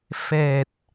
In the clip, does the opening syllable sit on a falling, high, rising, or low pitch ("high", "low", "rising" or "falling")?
low